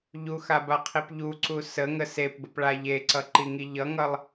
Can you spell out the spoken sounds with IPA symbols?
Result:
ʎ u x a b a qʰ i p ʎ u ǀ u s ə ŋ ə s e p b ə p ɭ a ʎ e ǀ ʌ ǃ i ŋ i ʎ ʌ ŋ ʌ lˠ

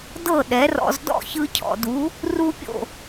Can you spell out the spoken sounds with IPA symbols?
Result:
d ɤ˥˩ ɗ ɛ˩˥ r ɔ̰˧ z d ɔ̰˥˩ ç ɯ˧ cʰ ɔ̰˩ d u˩˥ | r u˥ pʲ o̰˥˩

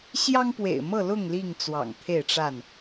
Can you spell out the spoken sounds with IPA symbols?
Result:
ɕ j ɑ˦ ŋ p w ḛ˨˩ ɪ̯ m ɤ˥˨ l ʊ˥˨ ŋ l i˥˨ ŋ t͡s w ɑ̰˨˩ ŋ t̪ʰ e˥˨ ɪ̯ ʈ͡ʂ a˥˨ n

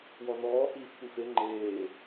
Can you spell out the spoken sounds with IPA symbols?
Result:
w ɔ n ɔː h iː f tʷ i f e ŋ͡ǃ eː

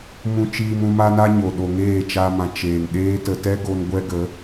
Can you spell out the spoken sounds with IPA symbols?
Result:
m ũ˧ t͡ʃ iː˧ m ũ˧ m a˦ n a˦ ɲ o˨ ɗ o˨ ŋ eː˦˨ t͡ʃ a˦ m ã˧ t͡ʃ eː˨ ŋ ɗ eː˦ t ə˧ t ɛ˦ ɡ o˧ n ɡʷ ɛ˦ ɡ ə˨˦

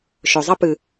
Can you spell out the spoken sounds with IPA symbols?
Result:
ʃ ɵ˨ zˤ ɐ˦ p ɨ˨

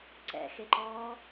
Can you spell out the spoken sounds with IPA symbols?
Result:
ǀ ɛ̰ x e ǃ ɔː

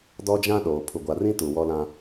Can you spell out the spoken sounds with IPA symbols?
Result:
d ɔ˦ d͡ʒ ã˦ ɗ oː˨ pʰ u˨ ɡʷ a˨ r ĩ˦ t u˨ w ɔ˦ l ã˦

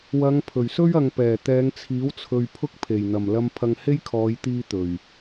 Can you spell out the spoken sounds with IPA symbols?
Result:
w ɐ˨˧ ŋ pʰ ɵ˨˩ ɥ s ɵ˥ ɥ ɐ˨ ŋ p ɛː˨˩ t̪ ɛː˨˧ ŋ t͡sʰ iː˨˥ w t͡sʰ ɵ˨ ɥ pʰ ʊ˥ k̚ pʰ e˨˩ j n̪ ɐ˨˩ m l ɐ˨ m pʰ ɐ˨ ŋ h e˥ j kʰ ɔː˨˧ j t̪ iː˧ t̪ ɵ˨˩ ɥ

